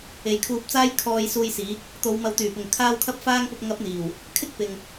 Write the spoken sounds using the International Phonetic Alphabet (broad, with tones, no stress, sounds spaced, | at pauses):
e˨˧ j kʰ uː˧ p̚ t͡s aː˥ j kʰ ɔː˧ j s uː˧ j s iː˨˥ k̚ | t̪ o˨˧ w m ɐ˨ w t̪ yː˨˩ p ʊ˨˩ ŋ kʰ aː˧ w kʰ ɐ˧ p̚ f aː˧ ŋ p ʊ˨ k̚ ŋ ɐ˨˥ p̚ n̪ iː˨˩ w | kʰ ɪ˥ k̚ p ɪ˨ ŋ